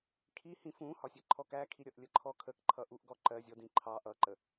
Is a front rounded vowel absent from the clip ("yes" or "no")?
yes